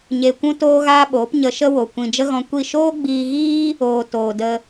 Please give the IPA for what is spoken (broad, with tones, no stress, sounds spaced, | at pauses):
ɲ e˧ kʷ ũ˦ t oː˦ ɣ aː˦ ɓ oː˨˦ p ɲ ə˧ ʃ ə˦ w o˨ kʷ ĩ˨ d͡ʒ ə˦ ɣ ɔ̃˧ kʷ i˦˨ ʃ oː˦ ɡ͡b iː˧ ɣ iː˦ | oː˧ t oː˨ d ə˦